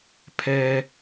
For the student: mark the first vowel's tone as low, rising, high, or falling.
high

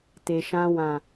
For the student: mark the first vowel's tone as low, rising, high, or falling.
low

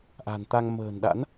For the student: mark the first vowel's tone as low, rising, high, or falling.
low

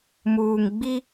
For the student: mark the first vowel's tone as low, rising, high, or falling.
low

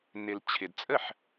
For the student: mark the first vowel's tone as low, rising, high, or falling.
low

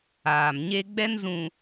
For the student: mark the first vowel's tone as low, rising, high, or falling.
low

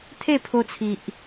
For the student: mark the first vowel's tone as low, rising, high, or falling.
falling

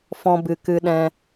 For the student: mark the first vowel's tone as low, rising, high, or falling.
high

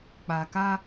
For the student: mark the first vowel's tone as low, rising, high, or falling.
low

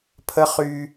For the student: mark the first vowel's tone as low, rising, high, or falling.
high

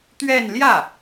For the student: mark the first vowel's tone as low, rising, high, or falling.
falling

